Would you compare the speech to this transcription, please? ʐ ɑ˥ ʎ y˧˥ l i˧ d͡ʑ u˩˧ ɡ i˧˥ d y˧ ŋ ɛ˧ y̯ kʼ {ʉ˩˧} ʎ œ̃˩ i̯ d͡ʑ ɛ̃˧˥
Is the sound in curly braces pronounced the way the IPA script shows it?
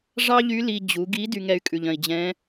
no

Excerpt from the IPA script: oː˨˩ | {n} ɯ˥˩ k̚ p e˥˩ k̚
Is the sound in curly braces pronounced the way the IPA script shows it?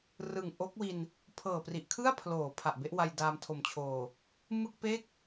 no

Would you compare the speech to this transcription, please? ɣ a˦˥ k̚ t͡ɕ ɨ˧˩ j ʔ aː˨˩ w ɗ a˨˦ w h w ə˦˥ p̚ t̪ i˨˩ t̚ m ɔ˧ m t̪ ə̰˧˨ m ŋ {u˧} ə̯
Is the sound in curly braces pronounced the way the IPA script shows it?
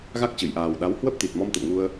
yes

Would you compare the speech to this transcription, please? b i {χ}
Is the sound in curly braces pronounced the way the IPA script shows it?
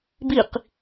no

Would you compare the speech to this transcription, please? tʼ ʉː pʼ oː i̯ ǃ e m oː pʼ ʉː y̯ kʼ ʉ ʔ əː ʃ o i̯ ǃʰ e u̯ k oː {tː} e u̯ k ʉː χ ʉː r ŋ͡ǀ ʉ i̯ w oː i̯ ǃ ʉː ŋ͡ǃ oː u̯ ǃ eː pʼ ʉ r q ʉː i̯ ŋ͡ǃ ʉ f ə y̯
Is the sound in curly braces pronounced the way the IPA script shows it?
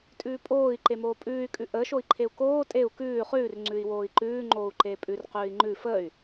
no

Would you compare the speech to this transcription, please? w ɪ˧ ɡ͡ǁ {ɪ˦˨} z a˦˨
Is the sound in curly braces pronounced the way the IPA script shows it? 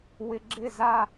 yes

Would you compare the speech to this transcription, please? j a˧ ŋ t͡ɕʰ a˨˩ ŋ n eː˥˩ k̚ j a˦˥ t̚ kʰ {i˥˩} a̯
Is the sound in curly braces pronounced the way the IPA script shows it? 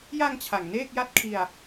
no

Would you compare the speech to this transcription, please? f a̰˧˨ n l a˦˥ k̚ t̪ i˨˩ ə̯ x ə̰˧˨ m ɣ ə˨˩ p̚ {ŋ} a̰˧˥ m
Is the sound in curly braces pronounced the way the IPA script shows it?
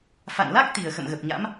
no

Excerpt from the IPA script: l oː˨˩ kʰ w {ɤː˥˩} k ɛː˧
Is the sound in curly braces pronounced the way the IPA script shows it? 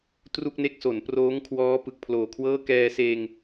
yes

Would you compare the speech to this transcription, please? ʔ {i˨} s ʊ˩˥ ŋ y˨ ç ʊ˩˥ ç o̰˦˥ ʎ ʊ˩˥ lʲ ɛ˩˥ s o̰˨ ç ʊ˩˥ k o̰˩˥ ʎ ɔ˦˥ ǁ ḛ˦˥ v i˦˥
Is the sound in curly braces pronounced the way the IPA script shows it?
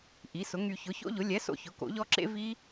no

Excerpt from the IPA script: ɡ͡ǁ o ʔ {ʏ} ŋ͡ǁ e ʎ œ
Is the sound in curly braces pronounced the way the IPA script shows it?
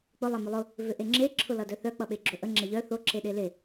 no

